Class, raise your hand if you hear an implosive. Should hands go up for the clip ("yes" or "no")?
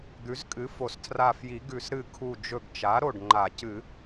no